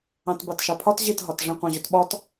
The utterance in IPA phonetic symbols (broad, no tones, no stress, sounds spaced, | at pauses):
ɑ̃ t b ɑ t ʃ ɑ pʰ ɒ t ʑ i t ɦ ɒ t ʐ ĩ qʷ ɑ̃ ʑ ʊ t ɓ ɒ t